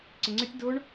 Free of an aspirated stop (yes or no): yes